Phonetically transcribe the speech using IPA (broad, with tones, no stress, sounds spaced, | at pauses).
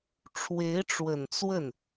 ʈ͡ʂʰ w e˧˥ ɪ̯ ʈ͡ʂ w ə˨˩ n t͡s w ə˥˩ n